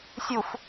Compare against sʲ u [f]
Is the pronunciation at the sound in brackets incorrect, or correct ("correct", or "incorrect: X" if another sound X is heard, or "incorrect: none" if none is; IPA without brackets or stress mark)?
correct